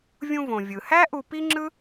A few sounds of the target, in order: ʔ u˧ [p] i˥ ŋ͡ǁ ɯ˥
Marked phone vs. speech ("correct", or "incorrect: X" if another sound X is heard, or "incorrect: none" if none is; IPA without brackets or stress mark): correct